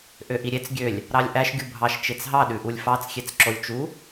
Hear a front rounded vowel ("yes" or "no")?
yes